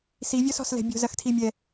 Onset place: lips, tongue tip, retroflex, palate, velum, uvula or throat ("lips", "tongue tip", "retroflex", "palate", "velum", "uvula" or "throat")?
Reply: tongue tip